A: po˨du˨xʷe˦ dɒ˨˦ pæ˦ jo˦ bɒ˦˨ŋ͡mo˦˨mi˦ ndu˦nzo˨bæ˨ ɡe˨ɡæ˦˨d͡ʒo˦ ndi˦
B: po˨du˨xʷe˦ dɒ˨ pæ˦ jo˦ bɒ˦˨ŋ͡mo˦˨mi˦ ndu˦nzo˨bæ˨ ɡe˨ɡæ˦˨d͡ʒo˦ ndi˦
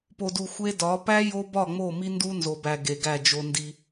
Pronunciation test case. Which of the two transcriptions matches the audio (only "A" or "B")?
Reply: A